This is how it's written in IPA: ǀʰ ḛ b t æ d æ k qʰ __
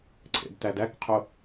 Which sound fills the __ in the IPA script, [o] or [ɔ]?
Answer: o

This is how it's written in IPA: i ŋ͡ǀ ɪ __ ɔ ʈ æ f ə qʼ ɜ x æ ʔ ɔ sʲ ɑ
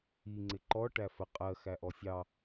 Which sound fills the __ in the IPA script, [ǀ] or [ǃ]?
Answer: ǃ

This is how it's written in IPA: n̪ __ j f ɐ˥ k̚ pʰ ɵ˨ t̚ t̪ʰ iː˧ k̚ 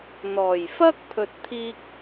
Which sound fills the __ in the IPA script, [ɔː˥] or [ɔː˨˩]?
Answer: ɔː˨˩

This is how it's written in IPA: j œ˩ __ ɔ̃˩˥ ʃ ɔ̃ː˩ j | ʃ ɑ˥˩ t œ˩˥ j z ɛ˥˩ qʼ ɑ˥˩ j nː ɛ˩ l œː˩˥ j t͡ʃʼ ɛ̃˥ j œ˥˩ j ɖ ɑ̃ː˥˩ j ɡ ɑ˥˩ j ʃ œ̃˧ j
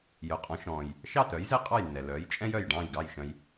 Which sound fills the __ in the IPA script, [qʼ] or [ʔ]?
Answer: qʼ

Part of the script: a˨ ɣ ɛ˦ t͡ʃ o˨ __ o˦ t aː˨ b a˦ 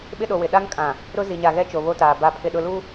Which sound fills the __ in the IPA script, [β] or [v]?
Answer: β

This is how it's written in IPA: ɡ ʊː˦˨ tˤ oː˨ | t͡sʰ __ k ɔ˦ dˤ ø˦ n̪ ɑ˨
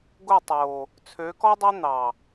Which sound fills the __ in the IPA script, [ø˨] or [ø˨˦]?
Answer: ø˨˦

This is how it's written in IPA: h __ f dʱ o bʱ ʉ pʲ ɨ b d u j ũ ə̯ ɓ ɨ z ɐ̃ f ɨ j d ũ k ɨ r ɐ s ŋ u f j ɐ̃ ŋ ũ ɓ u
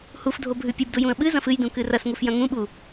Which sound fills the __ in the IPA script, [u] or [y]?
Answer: u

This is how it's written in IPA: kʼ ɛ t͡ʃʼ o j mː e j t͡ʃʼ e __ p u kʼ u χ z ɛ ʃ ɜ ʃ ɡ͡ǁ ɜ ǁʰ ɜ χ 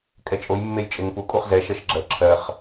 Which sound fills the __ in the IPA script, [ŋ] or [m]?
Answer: ŋ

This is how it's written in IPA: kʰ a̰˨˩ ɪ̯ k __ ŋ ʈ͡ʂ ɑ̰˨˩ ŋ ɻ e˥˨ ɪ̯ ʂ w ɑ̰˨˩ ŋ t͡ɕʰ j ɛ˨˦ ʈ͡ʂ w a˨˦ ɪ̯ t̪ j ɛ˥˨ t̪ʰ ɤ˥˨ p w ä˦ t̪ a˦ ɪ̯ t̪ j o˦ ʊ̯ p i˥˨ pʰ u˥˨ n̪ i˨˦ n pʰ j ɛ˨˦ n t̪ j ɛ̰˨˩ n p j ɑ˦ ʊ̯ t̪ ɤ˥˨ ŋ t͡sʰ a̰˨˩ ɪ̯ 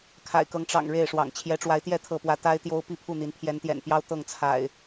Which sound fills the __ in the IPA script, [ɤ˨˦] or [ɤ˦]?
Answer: ɤ˨˦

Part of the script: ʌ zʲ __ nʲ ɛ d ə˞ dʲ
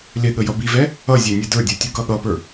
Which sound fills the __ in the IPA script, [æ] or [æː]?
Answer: æ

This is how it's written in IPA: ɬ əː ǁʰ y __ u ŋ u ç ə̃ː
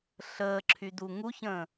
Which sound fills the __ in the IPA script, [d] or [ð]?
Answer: d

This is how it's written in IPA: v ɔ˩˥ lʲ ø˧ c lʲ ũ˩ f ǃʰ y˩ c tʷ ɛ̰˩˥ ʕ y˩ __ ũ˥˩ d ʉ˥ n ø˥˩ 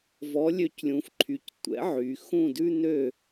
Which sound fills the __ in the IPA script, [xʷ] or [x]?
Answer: x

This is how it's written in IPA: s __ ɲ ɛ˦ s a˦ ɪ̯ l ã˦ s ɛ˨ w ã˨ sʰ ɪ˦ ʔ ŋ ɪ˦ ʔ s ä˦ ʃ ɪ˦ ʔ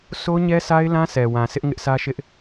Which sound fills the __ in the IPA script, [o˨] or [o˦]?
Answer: o˦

